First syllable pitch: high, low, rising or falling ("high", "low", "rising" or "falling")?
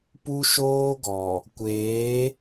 high